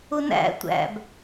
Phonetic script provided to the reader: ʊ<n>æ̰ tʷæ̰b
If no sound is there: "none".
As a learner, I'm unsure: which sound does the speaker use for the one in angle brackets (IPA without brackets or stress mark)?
n